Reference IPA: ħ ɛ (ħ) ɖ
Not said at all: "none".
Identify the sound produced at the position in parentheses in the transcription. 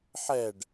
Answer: none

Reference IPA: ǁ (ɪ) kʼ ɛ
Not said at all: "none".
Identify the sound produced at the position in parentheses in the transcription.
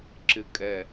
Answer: ɪ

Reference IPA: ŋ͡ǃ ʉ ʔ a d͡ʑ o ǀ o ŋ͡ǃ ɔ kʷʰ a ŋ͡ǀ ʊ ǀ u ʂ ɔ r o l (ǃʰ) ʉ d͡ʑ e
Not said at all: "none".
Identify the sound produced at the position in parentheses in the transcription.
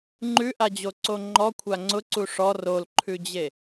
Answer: ǃʰ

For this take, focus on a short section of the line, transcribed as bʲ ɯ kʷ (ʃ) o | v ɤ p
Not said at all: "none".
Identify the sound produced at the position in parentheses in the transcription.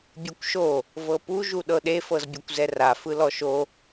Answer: ʃ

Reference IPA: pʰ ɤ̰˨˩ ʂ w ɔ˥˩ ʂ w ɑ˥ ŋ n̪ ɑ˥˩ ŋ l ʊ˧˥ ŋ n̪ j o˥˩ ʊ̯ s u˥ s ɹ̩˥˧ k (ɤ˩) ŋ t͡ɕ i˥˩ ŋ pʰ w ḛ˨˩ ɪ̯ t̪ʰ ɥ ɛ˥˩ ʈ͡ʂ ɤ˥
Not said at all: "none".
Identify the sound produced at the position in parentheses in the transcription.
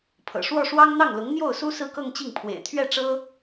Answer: ɤ˥˧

